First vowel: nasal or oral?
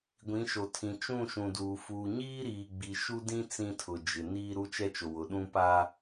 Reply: nasal